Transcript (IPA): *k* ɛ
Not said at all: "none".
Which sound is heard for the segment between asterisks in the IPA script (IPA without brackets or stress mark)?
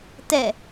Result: t